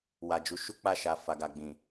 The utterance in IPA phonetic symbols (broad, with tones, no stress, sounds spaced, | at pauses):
w a˨ d͡ʒ u˨˦ ʃ u˦ k͡p a˦˨ ʃ a˨ f a˨ ɡ a˨ ɡ͡b ĩ˨